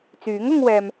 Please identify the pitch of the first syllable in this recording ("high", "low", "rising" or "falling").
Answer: rising